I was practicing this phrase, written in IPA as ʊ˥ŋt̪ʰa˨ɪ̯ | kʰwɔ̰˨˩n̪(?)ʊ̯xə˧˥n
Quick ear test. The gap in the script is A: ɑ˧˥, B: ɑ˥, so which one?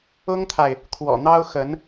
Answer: B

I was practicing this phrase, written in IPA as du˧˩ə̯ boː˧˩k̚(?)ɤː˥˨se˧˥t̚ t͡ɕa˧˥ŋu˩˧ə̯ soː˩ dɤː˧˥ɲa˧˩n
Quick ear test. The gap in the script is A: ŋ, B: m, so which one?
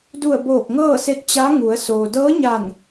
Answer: A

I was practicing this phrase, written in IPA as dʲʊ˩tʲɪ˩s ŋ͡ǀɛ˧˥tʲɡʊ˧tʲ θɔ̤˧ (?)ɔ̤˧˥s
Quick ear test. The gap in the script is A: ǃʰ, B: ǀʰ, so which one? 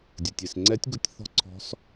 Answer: B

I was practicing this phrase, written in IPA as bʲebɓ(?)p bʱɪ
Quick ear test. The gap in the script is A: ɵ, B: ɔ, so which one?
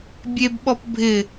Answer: B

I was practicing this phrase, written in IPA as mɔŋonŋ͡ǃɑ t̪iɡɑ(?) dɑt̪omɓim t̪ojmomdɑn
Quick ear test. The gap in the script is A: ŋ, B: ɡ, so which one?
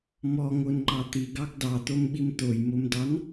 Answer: B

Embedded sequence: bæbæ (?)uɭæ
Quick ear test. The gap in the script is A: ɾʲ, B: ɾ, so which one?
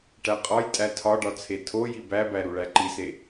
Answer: B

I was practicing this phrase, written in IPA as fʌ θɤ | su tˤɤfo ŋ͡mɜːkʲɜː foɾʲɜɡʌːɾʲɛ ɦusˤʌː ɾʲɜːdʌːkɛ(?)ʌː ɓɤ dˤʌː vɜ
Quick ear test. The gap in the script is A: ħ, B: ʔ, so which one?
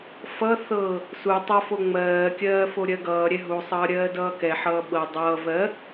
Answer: A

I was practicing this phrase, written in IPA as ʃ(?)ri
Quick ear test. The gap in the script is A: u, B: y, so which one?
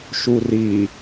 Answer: A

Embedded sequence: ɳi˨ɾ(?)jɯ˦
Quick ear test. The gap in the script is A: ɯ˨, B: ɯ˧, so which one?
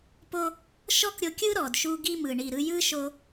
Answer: B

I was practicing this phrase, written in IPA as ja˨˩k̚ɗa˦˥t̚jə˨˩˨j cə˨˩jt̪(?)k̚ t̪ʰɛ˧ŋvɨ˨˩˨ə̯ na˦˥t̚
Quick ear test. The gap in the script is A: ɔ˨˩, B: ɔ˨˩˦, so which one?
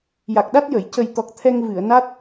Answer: A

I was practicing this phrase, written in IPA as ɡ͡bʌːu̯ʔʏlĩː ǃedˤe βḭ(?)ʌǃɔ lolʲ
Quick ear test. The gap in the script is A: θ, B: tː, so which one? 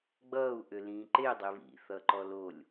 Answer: A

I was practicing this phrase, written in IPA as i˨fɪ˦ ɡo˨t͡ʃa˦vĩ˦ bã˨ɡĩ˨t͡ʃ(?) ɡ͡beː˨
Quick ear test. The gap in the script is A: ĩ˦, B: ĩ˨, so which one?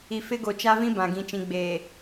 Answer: B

